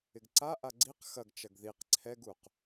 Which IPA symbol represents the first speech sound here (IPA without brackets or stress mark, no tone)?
ɪ